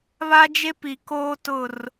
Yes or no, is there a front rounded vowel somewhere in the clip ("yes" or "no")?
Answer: no